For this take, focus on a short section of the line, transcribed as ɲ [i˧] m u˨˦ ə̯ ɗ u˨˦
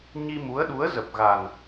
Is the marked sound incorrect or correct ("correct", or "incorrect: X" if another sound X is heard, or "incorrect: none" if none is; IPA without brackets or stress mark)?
correct